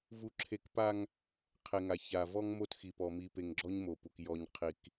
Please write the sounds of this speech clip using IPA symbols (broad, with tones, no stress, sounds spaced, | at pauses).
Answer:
v u˦ ǁʰ e˦ k p a˦ ŋ | qʰ e˨ ŋ a˨ ç a˨ v ɔ˦ ŋ m o˦ t x i˨ p ɔ˨ m i˨ p e˨ ŋ ɡ͡ǁ ɔ˦ ɲ m o˨ p u˨ k j ɔ˦ ɲ qʰ i˦ k